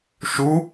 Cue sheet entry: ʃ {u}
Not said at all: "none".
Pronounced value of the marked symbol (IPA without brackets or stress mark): u